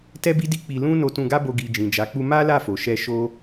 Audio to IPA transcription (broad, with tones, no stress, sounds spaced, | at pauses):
t ɛ˦ b i˦ d i˦ k͡p i˧ l ũ˦ n o˧ t ũ˧ ɡ a˦ b o˧ ɡ i˨ d͡ʒ ĩ˨ d͡ʒ a˨˦ k͡p u˦ m a˦ l a˦˨ f o˨ ʃ ɛ˧ ʃ o˦